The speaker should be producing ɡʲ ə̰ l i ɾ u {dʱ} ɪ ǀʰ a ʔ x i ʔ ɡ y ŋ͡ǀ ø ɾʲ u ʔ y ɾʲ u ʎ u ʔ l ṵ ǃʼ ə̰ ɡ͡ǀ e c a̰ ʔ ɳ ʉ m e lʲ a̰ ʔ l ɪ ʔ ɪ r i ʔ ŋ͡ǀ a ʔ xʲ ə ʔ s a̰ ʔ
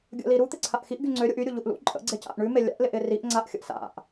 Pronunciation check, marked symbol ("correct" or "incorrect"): incorrect